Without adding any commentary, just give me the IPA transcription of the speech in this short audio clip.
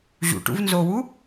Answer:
ʑṵʈṵvnzowu

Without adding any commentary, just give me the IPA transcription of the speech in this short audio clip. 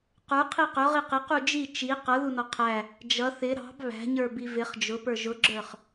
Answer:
qə˞qʰi qʊʁi qɪqu d͡ʒi t͡ʃi qʌðunɔ qʰæ | d͡ʒʌ θɪ ɾɑ̤b βæ̤ɲə˞bi vɪχ d͡ʒʊpə˞ ʒʊɡ͡ǁə˞χ

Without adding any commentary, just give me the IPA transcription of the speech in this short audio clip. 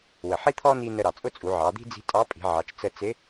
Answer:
wə˩ħi˥t̪ʰɔ˥ni˧ nə˧ɾɑ˩t͡sʼʊ˥t͡sʼu˩˧ ʕɑ˩˧ d̪i̤˥d͡zi̤˧˥ tʼɑ˧˥pʼi̤˩˧ʕɑ˩˧t͡ʃ t͡sə˧t͡sɪ˧˥

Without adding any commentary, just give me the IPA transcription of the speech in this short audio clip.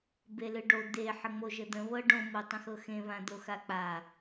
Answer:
belɨɖo d̪e ħəŋ͡moʒəd̪ə̃ βɤɖõ motˤə̃xɤxẽ βãd̪oxak͡pa

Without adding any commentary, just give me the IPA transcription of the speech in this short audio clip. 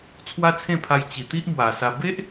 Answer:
t͡sʰwa˦t͡sʰẽ˥˧pʰa˧j t͡ɕi˨˩t̪i˦ʔmwa˨˩sa˧ be˦ʔ

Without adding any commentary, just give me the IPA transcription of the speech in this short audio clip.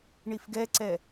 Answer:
ɳifɡɛǀɛ

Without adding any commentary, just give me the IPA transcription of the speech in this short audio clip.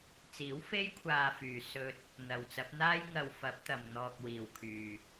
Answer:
t͡siː˨˥wfe˥jkʷʰaː˧fyː˨ sɵ˧t̚ | n̪ɐ˨wt͡sɐ˨˥p̚ n̪aː˥jŋɐ˧wfɐ˨˥p̚t̪ɐ˨m n̪ɔː˨k̚ wiː˨wkʰyː˨

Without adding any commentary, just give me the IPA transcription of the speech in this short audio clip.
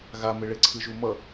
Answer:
ɣameɭe ǀʰɯʒumʌ

